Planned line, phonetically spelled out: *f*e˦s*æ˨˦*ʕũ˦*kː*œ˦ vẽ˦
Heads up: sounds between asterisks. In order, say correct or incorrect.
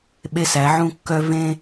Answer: incorrect: ɓ, correct, correct

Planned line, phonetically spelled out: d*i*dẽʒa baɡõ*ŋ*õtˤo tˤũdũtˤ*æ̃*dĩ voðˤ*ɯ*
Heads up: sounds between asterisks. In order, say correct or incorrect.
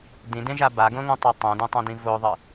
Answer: incorrect: ĩ, correct, incorrect: ɛ̃, correct

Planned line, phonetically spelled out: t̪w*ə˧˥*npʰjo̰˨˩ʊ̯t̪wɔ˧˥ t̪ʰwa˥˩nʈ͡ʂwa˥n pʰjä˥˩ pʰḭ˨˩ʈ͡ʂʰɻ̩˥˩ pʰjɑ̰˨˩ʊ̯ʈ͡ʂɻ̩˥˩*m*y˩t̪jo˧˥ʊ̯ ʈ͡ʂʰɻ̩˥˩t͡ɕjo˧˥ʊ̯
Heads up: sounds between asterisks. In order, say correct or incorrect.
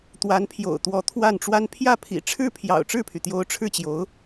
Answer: incorrect: a˧˥, incorrect: pʰ

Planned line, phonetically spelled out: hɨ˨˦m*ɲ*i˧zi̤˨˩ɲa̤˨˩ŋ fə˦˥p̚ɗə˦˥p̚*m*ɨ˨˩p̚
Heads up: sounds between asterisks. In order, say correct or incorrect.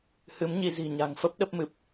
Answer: correct, correct

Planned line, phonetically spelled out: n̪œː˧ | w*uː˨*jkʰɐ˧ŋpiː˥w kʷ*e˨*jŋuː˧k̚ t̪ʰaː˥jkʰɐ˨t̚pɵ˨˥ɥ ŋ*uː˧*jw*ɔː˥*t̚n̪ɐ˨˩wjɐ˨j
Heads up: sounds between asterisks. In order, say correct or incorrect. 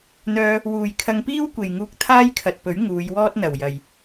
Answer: correct, correct, incorrect: uː˨˧, correct

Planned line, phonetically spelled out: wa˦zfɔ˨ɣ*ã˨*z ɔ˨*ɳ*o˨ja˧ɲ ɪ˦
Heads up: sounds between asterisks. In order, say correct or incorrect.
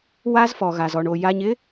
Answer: incorrect: a˨, correct

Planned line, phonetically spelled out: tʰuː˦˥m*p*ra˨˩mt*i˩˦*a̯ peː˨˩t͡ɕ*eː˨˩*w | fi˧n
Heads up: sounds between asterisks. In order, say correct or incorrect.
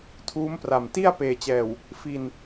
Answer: correct, incorrect: i˥˩, incorrect: ɛː˨˩

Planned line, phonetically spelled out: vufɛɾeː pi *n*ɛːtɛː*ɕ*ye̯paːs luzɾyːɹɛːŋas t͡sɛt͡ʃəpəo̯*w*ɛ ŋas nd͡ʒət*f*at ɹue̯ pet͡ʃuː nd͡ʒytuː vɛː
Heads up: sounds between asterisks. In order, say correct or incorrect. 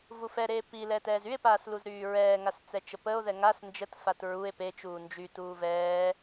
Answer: incorrect: l, incorrect: z, incorrect: ð, correct

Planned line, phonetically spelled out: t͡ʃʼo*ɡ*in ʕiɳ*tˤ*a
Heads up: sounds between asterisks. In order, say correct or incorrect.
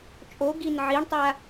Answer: correct, correct

